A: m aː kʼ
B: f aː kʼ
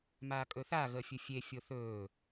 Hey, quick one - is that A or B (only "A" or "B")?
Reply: A